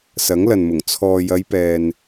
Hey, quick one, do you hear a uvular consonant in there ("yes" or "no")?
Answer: no